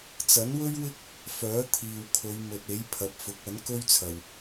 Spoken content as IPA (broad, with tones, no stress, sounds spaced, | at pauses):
t͡s ɐ˨˥ n w ɵ˥ ɥ w ɪ˥ k̚ | f œː˨˥ t̪ʰ iː˨ w kʰ ɵ˨˧ ɥ m ɵ˨ t̚ e˨˥ j pʰ ɐ˨˥ p̚ f ʊ˨˥ k̚ ɐ˨˥ n k ɵ˥ ɥ t͡sʰ ɐ˨ w